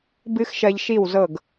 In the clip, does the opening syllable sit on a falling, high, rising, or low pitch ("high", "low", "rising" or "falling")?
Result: high